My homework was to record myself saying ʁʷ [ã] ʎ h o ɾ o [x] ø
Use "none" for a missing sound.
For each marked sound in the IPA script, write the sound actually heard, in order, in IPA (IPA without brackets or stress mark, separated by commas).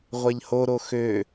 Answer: a, x